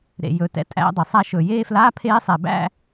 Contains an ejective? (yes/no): yes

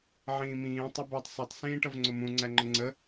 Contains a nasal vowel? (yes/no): yes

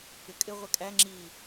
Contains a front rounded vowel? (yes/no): no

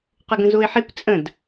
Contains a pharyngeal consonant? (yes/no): yes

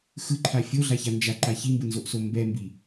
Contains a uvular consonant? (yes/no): no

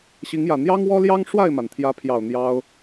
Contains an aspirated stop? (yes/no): yes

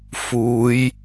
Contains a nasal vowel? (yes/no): no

